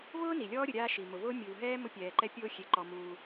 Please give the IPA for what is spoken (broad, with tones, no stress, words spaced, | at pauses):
vʊː˥ni˩lʲɔː˦ ɾʲʊ˨ɾʲaː˦ʃi˩ mʊ˩vʊː˦ mʲuː˩ɦɛː˥ mʊ˦pʲɛː˩ǃɛ˥ pʲʊː˥xʲe˨ǃɔ˨ muː˨